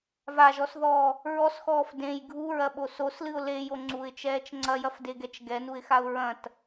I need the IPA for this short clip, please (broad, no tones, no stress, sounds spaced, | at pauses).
v a ʒ ɔ s ð ɔː | ɹ ɔ s x ɔː f d ẽ j ɡʱ u ɹ ɐ ɓ o s o s l ɨ ʊ̯ l e j o ŋ͡ǀ u ɪ̯ t͡ʃ ɛː t͡ʃ ŋ͡ǀ ɐ j ɐ f d e ɡ ɛ t͡ʃ ɡ ɛ n u ɪ̯ x a ʊ̯ ɹ ɐ̃ t